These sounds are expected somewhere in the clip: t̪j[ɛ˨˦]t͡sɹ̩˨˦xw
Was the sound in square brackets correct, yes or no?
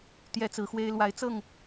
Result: no